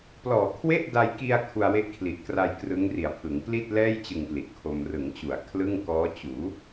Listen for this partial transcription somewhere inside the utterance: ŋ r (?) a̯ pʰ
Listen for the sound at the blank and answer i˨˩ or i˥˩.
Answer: i˨˩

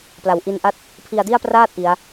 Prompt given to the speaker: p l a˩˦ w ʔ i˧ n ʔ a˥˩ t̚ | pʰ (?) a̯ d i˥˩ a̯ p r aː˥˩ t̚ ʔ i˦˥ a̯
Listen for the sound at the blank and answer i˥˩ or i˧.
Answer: i˧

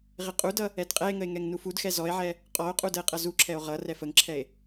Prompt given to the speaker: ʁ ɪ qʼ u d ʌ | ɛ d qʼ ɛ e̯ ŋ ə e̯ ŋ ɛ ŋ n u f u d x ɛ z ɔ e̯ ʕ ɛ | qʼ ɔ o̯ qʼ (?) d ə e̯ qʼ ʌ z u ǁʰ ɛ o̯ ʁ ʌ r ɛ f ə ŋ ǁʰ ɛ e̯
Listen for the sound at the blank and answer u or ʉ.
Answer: u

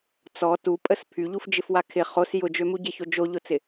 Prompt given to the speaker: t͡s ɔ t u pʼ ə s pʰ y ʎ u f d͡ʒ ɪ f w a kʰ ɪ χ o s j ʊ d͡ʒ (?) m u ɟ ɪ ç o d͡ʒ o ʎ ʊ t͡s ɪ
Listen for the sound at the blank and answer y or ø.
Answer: ø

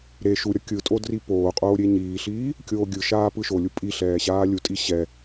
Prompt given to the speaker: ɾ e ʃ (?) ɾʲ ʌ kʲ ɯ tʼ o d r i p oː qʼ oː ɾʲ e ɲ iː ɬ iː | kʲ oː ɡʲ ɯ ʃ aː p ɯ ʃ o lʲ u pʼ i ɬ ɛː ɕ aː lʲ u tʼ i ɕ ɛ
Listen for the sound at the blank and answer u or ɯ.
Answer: u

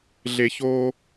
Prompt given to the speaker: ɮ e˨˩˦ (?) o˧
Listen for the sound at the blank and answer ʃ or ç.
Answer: ç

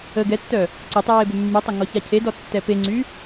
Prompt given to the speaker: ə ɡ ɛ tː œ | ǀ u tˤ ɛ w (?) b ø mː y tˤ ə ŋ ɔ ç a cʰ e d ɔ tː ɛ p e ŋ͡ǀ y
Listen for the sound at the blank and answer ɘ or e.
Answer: e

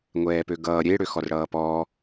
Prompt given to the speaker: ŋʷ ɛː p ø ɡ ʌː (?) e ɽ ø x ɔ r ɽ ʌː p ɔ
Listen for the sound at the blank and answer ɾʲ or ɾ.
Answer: ɾʲ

